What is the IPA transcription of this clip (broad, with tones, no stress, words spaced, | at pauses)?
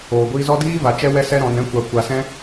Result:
oː˨ɡʷiː˧zɔ˦ diː˦ va˧t͡ʃɛ˦wɛ˦ sɛ˦ɾɔ̃˧nɛ̃˦ kʷa˧ kʷa˧sɛ̃˦